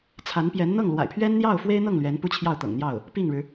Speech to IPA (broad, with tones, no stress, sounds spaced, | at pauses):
t͡sʰ a˧˥ n p j ɛ˧˥ n n̪ ɤ˥˩ ŋ l w a̰˨˩ ɪ̯ pʰ ɥ ɛ˥ n n̪ j ɑ˥˩ ʊ̯ f w e˥ ɪ̯ n̪ ɤ˥˩ ŋ l ɥ ɛ˧˥ n p u˥ t͡ɕʰ j ɑ˥˩ ʊ̯ t̪ ɤ̰˨˩ ŋ n̪ j ɑ˥˩ ʊ̯ | p i˥˩ ŋ ɻ ɻ̩˩